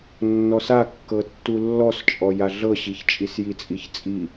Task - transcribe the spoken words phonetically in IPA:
nː ɔ s a kː ɤ tː u lː ɔ s t͡ʃʼ ɔ j a ɮ ɤ ɕ i ç t͡ʃʼ i s j i t͡sʼ i ç t͡sʼ i

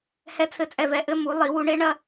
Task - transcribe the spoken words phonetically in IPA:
h ɛ˧ t͡sʰ ɘ˧˩ t͡sʼ ɛ˧˩ v ɛ˧˩ ʔ ɘ˥˧ m u˩˧ lˠ i˩˧ w u˧ ɳ e˥ ɳ ɐ˥˧

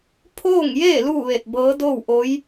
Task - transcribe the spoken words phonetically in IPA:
pʰ oː˥˨ ŋ j eː˥˨ l uː˥˨ ʋ e˧˩ t̚ b ɤː˧˥ d oː˥˨ w ʔ o˧˥ j

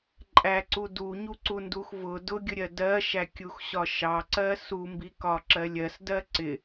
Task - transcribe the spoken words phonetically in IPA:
ǃʼ æ ǀ u d u ɲ u ǀ u n d u x v ʊ d ʊ ɡʲ ʊ ɾʲ ɜ d ɜ ʃ æ kʲ u x ɕ ɒ ʃ ɑ ǀ ɜ s u m b i k ɒ ǁ ɜ lʲ ɜ s d ɜ ǀ ɪ

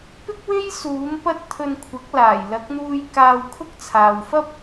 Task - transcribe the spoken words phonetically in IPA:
p ɪ˥ k̚ w e˥ j s uː˨˥ m p ɐ˥ t̚ t̪ʰ ɵ˧ n kʷʰ ɐ˨˥ k̚ l aː˨˩ j l ɐ˨˥ k̚ n̪ uː˧ j k aː˧ w kʰ ʊ˥ k̚ t͡sʰ aː˨ w f ɐ˥ p̚

